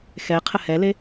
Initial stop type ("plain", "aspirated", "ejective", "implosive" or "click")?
aspirated